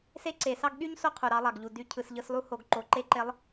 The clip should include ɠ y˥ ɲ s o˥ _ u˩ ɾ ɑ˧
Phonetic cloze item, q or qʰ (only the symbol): qʰ